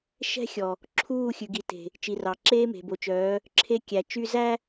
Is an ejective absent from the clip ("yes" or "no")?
yes